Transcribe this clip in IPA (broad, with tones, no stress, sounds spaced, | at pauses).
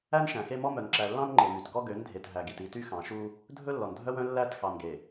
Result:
æ˦ n ʃ æ̃˨ x e˦ m ɔ˦ m œ˨ n ǁ æ˨ lː ɑ̃˦ n ŋ͡ǃ e˨ m y˨ t ɡ ɔ˦ ɡ ø˨˦ n dʱ e˨ t ɦ æ˨ ɡ i˨ t i˦ t y˦ x ɑ̃˨ ʃ u˦ | dʱ ɵ˦ lː ɔ˨ n dʱ œ˦ w œ̃˦ lː æ˦˨ t x ɑ˨ n ɡ e˨